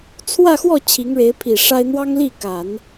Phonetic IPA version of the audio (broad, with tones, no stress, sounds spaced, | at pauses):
t͡sʰ w ä˥˧ x w ɔ˥˩ t͡ɕʰ i˧˥ ŋ ɻ e˧˥ ɪ̯ pʰ i˨˩ ʂ a˥ ɪ̯ n̪ w ɑ˥ ŋ l i˥˩ k a˨˩˦ n